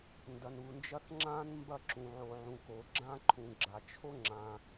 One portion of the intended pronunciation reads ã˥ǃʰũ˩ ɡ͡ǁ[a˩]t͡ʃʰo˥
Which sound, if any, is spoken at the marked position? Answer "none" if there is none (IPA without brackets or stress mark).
a˩